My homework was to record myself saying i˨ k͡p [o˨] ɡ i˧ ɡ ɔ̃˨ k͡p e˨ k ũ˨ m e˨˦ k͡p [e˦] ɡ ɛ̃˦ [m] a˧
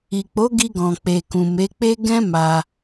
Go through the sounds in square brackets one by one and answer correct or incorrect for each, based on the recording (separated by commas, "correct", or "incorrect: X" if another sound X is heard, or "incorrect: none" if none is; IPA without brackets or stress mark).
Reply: incorrect: o˨˦, correct, correct